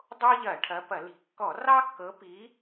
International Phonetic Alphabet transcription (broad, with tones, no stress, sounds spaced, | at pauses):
dˤ o˦ ʎ ɐ˧˩˧ ʈʰ ɐ˨˦ p ɐ˧˩˧ l i̤˧˩˧ kː ɔ˧˩˧ r ɑ˦ kː ɤ˨˦ p i˨˦